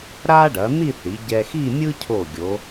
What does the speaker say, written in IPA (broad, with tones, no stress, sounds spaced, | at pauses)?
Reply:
ɾ a˥ ɖ ɐ˩˧ n̪ i˥˧ θ i˩˧ ɟ ɛ˧ x i˥˧ mʲ ɯ˥ cʰ o˧˩ ɡʲ o˩˧